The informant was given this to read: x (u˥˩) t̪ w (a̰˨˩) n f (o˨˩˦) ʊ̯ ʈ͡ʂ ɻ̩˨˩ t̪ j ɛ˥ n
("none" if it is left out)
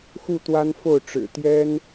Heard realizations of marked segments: u˥˩, a˥, o˥˩

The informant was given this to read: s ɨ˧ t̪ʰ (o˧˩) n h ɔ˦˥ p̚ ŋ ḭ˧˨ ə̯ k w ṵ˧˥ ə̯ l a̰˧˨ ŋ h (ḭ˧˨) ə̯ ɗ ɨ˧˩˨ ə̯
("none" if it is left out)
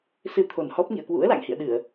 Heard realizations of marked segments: o˨˩, ḭ˧˨

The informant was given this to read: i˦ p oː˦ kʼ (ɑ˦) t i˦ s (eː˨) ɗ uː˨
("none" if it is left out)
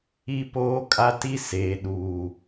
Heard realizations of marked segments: a˦, eː˨

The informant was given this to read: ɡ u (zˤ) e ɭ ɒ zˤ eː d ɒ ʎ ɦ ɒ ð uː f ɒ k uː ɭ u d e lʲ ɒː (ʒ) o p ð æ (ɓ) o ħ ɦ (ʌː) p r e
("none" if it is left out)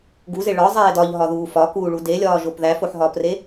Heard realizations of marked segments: z, ʒ, f, ɒː

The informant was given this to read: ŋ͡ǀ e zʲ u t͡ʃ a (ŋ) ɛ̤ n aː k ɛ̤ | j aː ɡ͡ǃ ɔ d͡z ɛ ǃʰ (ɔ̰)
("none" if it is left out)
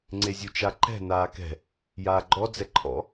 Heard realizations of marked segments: ǃ, ɔ̰

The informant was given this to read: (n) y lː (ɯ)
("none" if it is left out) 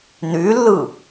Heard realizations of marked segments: n, ɯ

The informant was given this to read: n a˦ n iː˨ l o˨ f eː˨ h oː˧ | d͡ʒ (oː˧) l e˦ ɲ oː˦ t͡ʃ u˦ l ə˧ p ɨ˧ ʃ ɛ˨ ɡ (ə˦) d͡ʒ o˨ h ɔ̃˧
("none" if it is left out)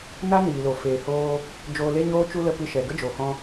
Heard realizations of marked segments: oː˧, ə˦

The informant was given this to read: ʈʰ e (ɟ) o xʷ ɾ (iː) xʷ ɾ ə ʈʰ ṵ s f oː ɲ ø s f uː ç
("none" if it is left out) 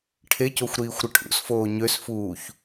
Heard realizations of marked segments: c, iː

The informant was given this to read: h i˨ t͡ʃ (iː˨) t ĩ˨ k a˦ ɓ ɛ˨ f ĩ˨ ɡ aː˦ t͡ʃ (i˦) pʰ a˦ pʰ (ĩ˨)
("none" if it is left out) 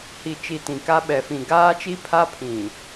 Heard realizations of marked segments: i˨, i˦, ĩ˨

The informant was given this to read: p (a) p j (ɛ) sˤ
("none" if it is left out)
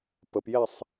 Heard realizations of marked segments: ə, ɛ

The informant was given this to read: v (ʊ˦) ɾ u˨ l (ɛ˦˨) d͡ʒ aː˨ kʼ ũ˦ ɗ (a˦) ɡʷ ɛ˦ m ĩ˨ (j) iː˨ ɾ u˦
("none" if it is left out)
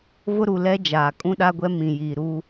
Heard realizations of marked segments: ʊ˦, ɛ˦, a˦, j

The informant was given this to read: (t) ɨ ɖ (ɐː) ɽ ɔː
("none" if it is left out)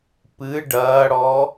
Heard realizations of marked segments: p, ɐː

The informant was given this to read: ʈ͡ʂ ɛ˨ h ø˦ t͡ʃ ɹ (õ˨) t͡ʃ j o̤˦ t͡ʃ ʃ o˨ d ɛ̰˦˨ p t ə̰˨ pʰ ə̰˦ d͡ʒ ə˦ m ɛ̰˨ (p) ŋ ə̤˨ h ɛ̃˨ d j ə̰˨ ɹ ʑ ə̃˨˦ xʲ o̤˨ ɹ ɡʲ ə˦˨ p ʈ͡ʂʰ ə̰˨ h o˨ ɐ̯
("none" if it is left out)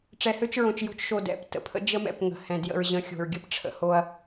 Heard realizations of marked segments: õ˨, p

